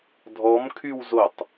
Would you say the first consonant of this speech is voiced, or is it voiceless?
voiced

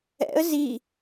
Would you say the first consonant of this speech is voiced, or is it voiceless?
voiced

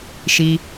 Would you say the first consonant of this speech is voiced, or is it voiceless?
voiceless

